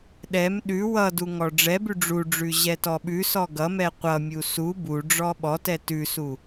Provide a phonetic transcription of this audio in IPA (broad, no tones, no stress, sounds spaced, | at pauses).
ɗ ɛ m ɗ ʉ w ʌ d u ŋ ɔ ɖ͡ʐ ɛ b ʉ ɖ͡ʐ u ɖ͡ʐ ʉ ʑ ɛ t ɔ ɓ ʉ s ɔ ɡ ʌ m ɛ qʷ ʌ mʲ u s u b u ɖ͡ʐ ɔ ɓ ɔ t ɛ t ʉ s u